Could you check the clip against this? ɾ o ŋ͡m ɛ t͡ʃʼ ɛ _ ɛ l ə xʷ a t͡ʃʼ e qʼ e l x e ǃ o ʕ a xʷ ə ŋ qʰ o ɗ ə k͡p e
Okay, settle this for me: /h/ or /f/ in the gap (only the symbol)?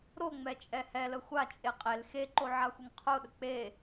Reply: h